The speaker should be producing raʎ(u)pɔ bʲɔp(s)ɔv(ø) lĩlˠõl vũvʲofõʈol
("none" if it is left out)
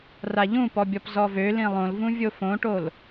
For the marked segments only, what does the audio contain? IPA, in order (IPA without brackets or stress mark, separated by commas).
ũ, z, ø